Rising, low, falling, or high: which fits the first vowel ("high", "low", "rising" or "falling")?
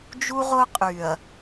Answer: high